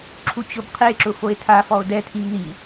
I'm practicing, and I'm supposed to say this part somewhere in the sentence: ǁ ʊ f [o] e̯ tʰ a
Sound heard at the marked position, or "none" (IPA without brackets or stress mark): o